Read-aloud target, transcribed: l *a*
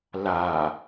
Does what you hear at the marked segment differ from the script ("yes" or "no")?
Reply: no